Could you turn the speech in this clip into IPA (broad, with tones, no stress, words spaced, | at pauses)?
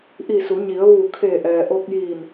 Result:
ʔi˧˩ su˩˧ɲi˩˧ə̯ʋu˧˩ kʰeː˧˩ʔɛː˩ ʔo˧k̚jiː˧˩n